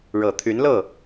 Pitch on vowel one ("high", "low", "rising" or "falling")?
low